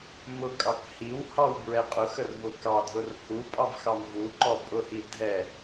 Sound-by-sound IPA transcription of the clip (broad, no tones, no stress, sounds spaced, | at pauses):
m ʊ kʼ ɑ k h i w h ɑ w b ɹ ɛ qʼ ʊ x ə r v ʊ k ɑ dʱ ʊ r h u pʼ ɑ v x ɑ m v u ǃ ɔ pʼ ʊ h i dʱ ɛ